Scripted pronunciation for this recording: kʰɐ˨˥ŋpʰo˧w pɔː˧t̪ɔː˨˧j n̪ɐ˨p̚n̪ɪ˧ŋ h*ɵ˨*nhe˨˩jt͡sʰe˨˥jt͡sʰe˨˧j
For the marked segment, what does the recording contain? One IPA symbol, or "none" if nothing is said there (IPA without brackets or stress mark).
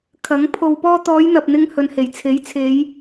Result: ɵ˨